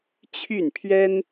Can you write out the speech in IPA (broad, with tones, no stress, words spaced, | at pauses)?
t͡ɕʰy˥˩npʰɥɛ˥n